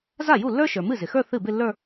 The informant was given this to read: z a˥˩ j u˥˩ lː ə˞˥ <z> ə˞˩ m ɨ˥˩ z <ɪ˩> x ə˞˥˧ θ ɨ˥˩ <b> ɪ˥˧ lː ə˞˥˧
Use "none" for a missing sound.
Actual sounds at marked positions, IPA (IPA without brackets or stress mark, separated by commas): ʃ, ɪ˩, b